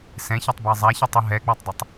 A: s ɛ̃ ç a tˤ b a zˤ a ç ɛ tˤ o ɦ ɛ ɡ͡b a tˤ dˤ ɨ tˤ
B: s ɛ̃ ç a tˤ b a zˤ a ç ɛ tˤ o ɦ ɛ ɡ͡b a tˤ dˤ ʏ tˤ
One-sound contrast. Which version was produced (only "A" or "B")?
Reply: A